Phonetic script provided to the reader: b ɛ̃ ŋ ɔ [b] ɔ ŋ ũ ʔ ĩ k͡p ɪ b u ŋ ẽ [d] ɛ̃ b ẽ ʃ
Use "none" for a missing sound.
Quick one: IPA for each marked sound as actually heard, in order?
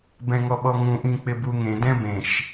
ɓ, d

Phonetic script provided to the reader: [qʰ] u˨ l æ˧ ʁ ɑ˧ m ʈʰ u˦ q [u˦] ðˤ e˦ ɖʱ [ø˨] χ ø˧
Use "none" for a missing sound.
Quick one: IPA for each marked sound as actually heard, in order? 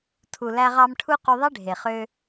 tʰ, u˧, e˨

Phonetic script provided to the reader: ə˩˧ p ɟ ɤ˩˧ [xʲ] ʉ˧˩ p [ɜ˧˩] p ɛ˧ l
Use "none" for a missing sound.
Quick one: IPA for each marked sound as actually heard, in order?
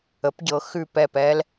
x, ɛ˧˩

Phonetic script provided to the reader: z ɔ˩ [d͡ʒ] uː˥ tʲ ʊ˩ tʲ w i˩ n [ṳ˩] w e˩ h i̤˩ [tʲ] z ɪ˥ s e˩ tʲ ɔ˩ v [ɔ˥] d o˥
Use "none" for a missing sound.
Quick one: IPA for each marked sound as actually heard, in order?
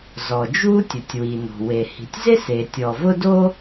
d͡ʒ, o̤˩, tʲ, ʊ˥

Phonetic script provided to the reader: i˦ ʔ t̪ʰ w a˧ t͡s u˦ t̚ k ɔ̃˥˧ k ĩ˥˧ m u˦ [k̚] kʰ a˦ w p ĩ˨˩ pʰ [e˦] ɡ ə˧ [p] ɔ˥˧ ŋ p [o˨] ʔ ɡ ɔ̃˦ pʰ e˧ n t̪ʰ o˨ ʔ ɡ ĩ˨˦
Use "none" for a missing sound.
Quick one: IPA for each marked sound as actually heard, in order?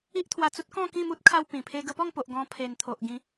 t̚, e˦, p, o˨

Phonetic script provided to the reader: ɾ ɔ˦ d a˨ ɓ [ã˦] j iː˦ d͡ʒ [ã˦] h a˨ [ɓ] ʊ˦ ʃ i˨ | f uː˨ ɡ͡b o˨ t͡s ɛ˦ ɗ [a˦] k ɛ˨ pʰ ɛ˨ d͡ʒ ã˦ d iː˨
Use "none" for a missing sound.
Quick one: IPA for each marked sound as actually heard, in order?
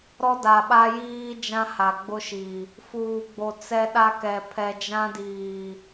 a˦, ã˦, ɡ͡b, a˦

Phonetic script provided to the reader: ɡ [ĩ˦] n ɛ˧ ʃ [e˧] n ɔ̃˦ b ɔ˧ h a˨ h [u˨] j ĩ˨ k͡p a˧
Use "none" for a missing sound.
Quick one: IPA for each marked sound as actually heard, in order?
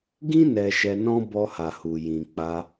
ĩ˦, ɛ˧, u˨

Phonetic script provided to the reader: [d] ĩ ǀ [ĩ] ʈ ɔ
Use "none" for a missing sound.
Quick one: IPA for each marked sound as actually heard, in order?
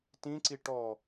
t, i

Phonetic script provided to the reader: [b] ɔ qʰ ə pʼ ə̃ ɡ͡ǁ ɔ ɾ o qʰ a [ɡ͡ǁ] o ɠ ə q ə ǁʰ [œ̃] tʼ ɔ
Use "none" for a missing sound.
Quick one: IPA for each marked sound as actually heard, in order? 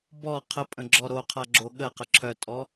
b, ɡ͡ǁ, œ

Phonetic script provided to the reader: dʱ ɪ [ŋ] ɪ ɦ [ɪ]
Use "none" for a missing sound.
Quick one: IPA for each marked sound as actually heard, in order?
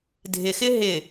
x, ɪ

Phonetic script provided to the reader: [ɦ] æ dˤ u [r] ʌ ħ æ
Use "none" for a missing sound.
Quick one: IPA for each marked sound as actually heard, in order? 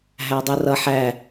ɦ, r

